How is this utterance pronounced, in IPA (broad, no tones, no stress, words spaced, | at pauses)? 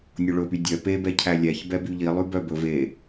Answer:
nʲoɭɵpy dʲœ pebɛ cʰælʲæç bɛbyʎilˠʉ bœbɵv e